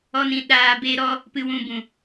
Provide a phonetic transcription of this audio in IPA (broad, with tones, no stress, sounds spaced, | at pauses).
ɔ˦ n ĩ˧ ɗ aː˧ b e˦ ɾ ɔ˦ | p ɨ˧ w ũ˧ b ũ˨